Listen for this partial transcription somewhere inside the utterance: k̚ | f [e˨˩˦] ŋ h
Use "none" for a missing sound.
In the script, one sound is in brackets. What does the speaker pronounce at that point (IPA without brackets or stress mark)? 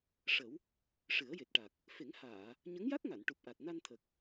e˨˩˦